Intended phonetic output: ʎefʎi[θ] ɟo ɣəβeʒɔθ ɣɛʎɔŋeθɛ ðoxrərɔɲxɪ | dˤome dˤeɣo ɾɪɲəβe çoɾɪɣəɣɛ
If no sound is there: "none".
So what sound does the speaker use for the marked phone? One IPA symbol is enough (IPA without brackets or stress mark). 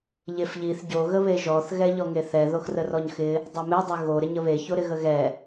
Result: θ